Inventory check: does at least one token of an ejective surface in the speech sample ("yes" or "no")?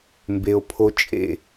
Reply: yes